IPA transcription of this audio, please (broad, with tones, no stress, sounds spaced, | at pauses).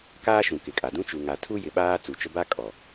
k aː˦ ʃ ũ˨ k ɪ˨ kʼ a˨ d ũ˦ t͡ʃ u˨ ŋ a˨ tʰ u˦ j ɪ˨ ɓ aː˦ t͡s u˨ t͡ʃ ʊ˦ b a˦ kʼ ɔ˨